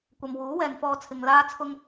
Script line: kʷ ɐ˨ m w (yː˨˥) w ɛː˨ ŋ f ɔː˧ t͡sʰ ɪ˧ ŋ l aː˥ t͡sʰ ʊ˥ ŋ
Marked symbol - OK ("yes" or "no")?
no